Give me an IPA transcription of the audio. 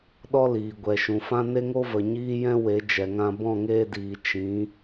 ɗ ɔ˦ l iː˨ ɡʷ ɛ˨ ʃ ũ˨ f ã˦ n e˦ ŋ o˦ v ə˨ ɲ iː˦ j ɛ̃˦ w e˨˦ d͡ʒ ɛ˨ ŋ ã˧ b ɔ̃˦˨ ŋ eː˧ d iː˨ t͡ʃ ĩ˨˦

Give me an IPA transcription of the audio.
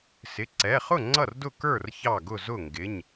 s ɪ˩˧˩ ǀ ɛ˩˧˩ χ ʊ˥˩ ŋ͡ǀ ʌ˥˩ r d ʊ˥˩ k ə˞˥˩ r ç ɑ˥˩ ɡ ʊ˥˩ z ʊ˥˩ ŋ ɡ ɪ˩˧˩ ɲ

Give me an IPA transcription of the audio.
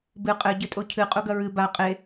b ɨ qʼ ɘ ɟ ɘ tʼ o cʰ ɨ qʼ u ɡ ɐ ɹ ɨ b a qʼ e

